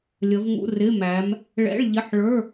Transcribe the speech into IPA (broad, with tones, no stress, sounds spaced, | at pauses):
lʲ ə˨˦ v ŋ ṵ˧˥˧ r ɪ˧˥˧ m æ˨˦ m | ɭ ɛ̰˧˥˧ ɭ ʎ ɪ˧˥˧ ħ ɭ ə˞˧˥˧